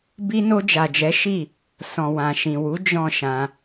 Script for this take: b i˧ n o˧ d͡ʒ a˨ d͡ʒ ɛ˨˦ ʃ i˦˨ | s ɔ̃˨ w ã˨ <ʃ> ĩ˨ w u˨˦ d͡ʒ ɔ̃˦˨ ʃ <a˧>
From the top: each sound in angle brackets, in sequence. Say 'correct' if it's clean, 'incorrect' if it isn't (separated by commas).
correct, incorrect